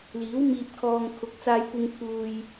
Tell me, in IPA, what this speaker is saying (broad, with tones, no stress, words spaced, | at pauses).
liː˨˥wmiː˧p̚kʰɔː˧ŋ kʰʊ˨k̚t͡saː˧jkʷɪ˧ŋ pʰuː˧j